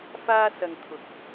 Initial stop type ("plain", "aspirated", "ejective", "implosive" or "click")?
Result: aspirated